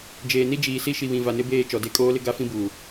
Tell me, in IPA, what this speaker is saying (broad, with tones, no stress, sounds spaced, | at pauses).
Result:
d͡ʒ eː˨ n i˦ d͡ʒ iː˨ s i˦ ʃ i˨ β ĩ˨ v a˨ n ɪ˦ b eː˦˨ t͡ʃ ɔ˨ d e˦˨ kʼ oː˦ l ɪ˦ ɡ a˦ f ĩ˦ b uː˨